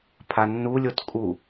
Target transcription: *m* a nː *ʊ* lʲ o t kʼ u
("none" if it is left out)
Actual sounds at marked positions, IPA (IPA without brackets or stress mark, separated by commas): pʰ, u